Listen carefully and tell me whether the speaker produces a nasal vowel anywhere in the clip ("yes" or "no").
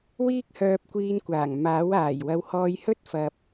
no